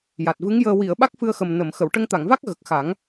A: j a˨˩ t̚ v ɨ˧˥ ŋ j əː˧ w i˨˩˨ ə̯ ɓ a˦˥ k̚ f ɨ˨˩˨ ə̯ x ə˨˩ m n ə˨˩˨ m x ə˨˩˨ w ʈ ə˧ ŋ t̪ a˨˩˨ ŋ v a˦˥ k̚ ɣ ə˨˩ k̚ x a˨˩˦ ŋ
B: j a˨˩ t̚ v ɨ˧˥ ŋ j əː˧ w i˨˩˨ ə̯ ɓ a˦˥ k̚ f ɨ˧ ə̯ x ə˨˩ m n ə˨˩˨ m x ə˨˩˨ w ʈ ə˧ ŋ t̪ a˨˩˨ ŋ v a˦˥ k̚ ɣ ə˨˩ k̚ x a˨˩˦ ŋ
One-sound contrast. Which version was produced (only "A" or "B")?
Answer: B